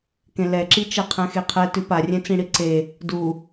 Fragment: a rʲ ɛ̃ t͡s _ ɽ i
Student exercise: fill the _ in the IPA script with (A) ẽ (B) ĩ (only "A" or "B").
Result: B